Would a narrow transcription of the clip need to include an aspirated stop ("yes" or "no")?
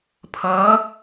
yes